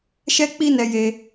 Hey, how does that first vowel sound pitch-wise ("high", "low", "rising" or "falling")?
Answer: high